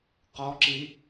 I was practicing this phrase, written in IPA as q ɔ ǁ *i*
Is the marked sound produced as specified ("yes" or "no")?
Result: yes